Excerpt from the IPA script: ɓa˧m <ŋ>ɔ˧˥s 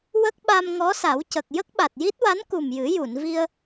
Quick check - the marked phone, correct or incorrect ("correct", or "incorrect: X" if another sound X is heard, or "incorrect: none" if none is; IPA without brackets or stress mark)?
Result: correct